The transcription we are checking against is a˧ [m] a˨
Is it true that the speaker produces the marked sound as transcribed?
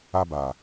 no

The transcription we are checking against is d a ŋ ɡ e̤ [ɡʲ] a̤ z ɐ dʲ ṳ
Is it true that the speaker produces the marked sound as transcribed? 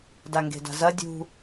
no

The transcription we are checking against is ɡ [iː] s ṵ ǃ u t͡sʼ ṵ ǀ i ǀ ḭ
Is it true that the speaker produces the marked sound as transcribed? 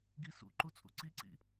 no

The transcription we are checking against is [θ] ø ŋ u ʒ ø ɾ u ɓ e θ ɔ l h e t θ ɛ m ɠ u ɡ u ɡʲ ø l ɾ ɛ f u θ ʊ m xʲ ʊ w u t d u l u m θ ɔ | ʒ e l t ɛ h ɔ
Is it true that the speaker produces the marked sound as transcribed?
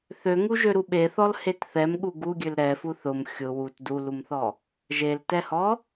yes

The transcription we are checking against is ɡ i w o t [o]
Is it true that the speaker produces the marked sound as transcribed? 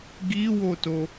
yes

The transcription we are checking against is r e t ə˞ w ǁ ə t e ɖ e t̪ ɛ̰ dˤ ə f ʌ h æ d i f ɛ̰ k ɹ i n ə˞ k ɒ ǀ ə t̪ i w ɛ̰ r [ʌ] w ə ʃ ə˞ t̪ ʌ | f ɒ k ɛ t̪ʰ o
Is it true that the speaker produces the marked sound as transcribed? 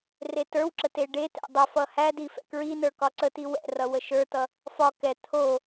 yes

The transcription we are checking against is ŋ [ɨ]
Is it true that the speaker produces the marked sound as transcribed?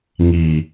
no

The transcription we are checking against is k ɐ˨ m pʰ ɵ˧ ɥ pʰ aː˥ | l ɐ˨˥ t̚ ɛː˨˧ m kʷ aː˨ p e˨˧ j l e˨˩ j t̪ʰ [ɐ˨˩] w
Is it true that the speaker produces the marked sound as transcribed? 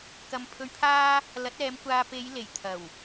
yes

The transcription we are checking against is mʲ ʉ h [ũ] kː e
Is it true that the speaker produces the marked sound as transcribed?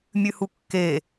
no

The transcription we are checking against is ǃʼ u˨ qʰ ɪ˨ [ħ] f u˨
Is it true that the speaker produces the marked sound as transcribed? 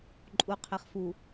no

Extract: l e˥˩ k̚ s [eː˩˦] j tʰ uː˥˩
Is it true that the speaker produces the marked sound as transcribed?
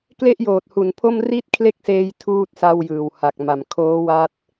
no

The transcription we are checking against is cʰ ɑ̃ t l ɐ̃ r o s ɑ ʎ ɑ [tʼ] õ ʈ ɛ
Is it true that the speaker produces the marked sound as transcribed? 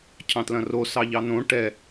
no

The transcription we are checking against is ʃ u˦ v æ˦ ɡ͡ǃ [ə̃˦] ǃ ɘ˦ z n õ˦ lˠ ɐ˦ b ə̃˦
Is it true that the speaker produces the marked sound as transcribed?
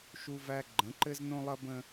no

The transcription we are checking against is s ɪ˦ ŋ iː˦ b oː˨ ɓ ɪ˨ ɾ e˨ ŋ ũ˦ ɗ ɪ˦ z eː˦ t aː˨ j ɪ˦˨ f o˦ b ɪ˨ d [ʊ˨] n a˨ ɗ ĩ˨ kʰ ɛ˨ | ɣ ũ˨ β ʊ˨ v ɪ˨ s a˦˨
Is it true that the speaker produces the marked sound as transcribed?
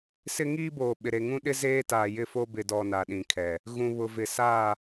no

